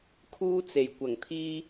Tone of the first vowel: high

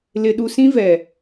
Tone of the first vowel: low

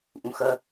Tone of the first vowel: low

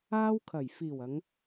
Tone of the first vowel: high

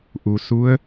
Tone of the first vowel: low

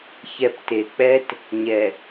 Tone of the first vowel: low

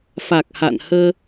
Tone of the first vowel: low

